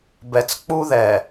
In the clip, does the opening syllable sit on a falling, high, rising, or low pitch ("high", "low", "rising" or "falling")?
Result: low